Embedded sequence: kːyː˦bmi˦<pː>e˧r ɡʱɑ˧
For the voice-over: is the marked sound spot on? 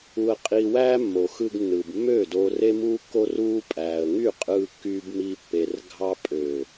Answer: yes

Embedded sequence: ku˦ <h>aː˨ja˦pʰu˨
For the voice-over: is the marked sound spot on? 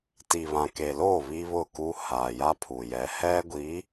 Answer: yes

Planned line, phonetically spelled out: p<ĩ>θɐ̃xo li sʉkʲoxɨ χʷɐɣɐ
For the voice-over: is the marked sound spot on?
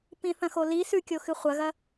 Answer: yes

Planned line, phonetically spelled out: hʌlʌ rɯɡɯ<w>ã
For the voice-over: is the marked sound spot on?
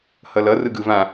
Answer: no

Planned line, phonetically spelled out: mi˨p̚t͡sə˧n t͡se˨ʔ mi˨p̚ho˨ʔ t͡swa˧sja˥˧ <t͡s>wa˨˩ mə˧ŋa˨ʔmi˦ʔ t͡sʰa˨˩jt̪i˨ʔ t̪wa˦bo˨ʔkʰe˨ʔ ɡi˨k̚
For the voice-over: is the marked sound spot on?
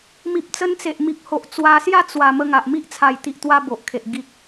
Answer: yes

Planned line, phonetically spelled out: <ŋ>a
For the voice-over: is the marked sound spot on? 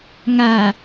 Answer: yes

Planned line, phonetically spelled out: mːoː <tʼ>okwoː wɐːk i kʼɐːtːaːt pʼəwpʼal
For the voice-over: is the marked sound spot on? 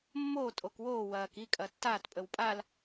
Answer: yes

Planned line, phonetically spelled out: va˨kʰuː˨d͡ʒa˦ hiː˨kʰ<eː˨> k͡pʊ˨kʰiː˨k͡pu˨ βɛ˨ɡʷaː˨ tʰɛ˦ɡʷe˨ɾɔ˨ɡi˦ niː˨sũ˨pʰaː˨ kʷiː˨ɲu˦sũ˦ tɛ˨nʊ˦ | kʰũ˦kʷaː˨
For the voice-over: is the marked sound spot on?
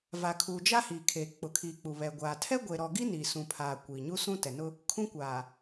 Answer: yes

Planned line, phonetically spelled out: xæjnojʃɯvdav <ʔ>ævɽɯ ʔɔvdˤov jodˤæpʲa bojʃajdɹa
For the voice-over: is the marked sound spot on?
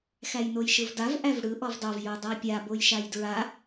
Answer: yes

